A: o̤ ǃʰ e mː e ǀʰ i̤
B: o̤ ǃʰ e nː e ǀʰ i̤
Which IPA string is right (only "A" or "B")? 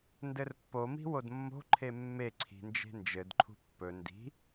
A